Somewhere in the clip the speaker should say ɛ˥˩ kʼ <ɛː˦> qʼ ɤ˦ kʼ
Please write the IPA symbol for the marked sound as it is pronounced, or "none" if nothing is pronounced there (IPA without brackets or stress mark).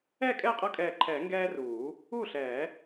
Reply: ɛː˥˩